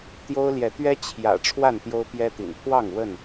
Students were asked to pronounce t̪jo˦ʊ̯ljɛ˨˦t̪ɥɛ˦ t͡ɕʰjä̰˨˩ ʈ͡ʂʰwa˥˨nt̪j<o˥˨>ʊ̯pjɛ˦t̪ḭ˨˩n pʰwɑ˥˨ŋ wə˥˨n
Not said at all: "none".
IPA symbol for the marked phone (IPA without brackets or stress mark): o˦